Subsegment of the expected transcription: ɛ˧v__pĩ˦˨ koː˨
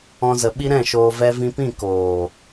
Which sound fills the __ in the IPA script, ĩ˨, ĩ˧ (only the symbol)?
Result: ĩ˧